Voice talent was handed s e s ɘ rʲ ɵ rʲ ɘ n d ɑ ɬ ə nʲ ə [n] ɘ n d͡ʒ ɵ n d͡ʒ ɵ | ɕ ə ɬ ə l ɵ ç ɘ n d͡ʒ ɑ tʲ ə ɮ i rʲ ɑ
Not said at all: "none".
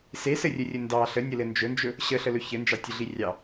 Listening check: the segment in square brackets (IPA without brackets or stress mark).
l